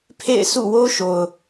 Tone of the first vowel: falling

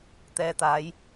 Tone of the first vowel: low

